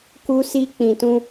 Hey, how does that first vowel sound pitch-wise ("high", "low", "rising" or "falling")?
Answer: high